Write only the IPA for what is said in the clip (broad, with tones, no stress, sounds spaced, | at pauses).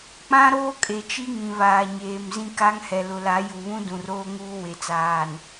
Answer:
k͡p ã˦ ɾ oː˦ kʼ e˨ t͡ʃ i˦ ŋ ĩ˨ β aː˨ ɲ eː˨ m z ĩ˦ k a˦ ŋ h ɛ˨ l ʊ˨ l a˨˦ j u˨ β ũ˦ d ũ˨ r oː˦ ŋ uː˦ w e˨ t͡s aː˨ n